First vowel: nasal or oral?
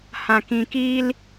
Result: nasal